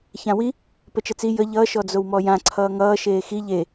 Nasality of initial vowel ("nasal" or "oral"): nasal